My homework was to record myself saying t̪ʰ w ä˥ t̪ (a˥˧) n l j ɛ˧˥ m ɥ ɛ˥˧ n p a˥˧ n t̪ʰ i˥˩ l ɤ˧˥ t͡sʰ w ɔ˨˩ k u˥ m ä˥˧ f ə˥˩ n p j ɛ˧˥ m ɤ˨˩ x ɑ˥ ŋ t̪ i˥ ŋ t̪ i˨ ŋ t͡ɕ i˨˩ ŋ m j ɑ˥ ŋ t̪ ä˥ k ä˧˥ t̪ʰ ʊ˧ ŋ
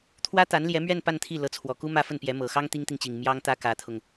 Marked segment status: incorrect: a˧˥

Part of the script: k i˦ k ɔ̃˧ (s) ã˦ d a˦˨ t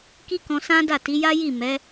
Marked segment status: correct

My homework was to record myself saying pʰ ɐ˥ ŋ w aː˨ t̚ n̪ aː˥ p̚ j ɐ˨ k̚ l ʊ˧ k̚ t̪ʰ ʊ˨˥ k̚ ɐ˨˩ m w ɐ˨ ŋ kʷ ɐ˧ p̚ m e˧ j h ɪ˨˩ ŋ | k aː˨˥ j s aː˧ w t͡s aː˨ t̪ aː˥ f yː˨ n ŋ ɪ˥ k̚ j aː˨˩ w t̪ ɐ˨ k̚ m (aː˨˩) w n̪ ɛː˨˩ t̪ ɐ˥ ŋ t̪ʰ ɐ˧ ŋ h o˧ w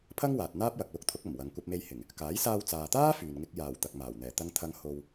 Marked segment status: correct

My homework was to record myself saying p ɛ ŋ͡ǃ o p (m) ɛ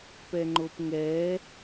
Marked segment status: incorrect: ŋ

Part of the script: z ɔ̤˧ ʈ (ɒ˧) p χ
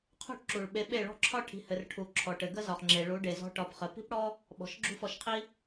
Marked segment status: incorrect: ɒ˨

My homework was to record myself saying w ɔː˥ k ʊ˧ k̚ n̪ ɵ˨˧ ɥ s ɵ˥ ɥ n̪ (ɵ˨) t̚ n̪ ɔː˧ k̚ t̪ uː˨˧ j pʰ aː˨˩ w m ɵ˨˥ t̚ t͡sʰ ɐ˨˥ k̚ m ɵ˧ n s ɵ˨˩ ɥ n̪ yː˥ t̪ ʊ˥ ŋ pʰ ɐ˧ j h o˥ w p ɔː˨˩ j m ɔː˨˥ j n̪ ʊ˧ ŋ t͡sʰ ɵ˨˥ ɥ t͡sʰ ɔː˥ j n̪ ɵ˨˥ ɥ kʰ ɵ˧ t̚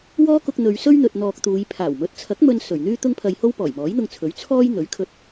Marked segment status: incorrect: ɵ˧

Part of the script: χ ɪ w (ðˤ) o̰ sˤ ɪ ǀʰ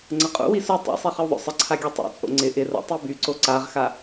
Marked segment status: correct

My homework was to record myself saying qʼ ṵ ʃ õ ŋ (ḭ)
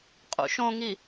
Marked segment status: incorrect: i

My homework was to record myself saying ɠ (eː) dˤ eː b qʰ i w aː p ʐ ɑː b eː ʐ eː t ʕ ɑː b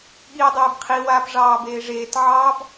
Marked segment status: incorrect: iː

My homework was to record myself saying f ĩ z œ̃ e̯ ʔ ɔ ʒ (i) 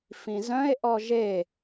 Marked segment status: incorrect: e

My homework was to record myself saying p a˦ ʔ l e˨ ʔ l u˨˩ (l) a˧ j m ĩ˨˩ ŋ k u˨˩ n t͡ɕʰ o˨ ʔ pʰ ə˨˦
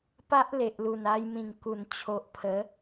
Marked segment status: incorrect: n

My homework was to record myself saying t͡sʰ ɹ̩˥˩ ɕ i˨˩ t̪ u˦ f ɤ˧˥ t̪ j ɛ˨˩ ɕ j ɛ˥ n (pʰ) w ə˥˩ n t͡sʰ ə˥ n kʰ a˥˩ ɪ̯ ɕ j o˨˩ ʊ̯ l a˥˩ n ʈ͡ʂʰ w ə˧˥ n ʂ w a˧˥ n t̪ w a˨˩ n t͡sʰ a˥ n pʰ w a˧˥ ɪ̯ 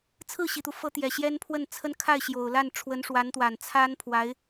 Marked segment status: correct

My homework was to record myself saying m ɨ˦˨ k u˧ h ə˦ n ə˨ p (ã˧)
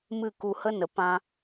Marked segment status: correct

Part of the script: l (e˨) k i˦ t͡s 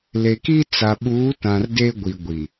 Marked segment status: correct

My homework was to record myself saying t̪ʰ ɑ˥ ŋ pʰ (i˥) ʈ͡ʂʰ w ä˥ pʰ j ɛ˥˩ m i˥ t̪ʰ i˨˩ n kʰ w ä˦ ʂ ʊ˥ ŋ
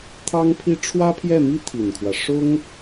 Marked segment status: correct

